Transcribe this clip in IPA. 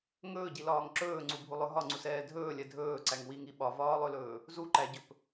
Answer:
ŋ ɵː ɟ i l ɒː ŋ ǁ ɵː ŋ͡ǀ u bʱ u lˠ ɵ ɦ ɒ ŋ͡ǀ u s ɛː dʱ ɵː lʲ ɛ dʱ ɵː ǀ æ ŋ w i ŋ i ɓ ɒ v ɒː lˠ ɵ l ɵː | z u ǃ æ ɟ ɵ p

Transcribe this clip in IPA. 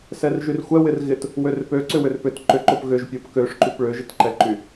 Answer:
s ɛ r ʒ y r xʷ ɛ w ɪ r ɣ ɪ t | w ø r p ø ǀ ʏ w ʏ r p ʏ t ǃ ʏ ǃ o p ɣ ʏ ʒ pʲ o p k ø ʂ ǃ y p ɭ ø ʒ ɪ t ǃ ɛ ǃ y

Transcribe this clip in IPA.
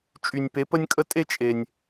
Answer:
t͡ʃʼ y˧ nʲ p e˧˥ p ə˥ nʲ kʼ ə˥ tʼ e˥ t͡ʃʼ e˧ nʲ

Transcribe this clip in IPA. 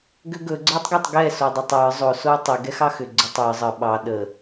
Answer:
ɡ ʏ ɡ ɵ ɡ͡ǀ ə˞ tˤ ɡ ə tˤ ɡ ɛ s o dˤ ɵ tˤ ə˞ zˤ o s o w tˤ ʏ ɡ ɛ x ɑ x ʏ ɡ͡ǀ ʏ tˤ ə˞ zˤ ə ɓ ɑ ɗ ə

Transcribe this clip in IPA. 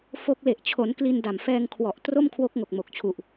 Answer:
f o˦˥ k̚ l e˨˩ ʔ t͡ɕʰ o˩˦ n k l i˧ n d a˨˩ m f ɛː˧ ŋ kʰ w ɔ˨˩ ʔ t r o˥˩ m kʰ w o˦˥ k̚ ŋ o˨˩ k̚ m o˨˩ k̚ t͡ɕʰ u˨˩ ʔ

